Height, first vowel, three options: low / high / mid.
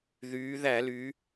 high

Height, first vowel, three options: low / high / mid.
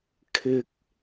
high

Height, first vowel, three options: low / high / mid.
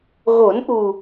mid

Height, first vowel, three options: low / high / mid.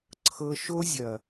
mid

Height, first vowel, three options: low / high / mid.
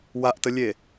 low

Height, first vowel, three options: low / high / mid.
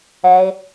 mid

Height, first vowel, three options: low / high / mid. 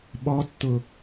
mid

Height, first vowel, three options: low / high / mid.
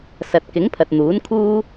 low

